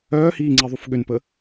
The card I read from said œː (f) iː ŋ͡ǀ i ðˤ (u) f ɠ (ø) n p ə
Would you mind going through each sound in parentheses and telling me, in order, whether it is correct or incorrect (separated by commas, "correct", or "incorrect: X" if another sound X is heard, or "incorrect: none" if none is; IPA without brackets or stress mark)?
incorrect: h, correct, correct